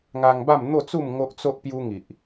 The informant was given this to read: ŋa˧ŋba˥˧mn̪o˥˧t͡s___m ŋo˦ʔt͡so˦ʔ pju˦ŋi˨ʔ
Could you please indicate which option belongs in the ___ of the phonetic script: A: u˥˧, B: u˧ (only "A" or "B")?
A